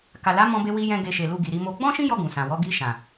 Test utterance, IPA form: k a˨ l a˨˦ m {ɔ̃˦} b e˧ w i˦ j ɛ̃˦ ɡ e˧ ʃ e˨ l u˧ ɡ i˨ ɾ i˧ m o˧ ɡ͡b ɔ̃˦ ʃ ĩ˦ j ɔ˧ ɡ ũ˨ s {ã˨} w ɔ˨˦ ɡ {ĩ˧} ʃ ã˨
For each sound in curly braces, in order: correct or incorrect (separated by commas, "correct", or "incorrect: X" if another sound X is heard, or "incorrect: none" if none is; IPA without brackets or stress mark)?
incorrect: ɔ̃˧, correct, incorrect: i˧